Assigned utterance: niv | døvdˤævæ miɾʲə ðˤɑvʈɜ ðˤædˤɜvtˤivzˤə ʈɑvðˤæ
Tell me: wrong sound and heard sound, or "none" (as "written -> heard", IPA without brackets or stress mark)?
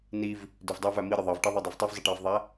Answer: none